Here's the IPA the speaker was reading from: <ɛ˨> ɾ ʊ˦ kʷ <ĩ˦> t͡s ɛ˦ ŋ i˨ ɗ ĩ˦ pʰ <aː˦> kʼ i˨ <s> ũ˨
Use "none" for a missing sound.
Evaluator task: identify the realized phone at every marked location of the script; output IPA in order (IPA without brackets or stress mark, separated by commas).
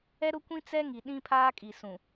ɛ˦, ĩ˦, aː˦, s